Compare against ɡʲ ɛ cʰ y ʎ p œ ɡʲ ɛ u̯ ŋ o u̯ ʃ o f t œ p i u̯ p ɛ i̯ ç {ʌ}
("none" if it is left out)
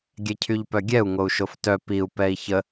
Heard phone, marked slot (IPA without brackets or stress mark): ə